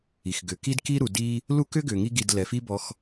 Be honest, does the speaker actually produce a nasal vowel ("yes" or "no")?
no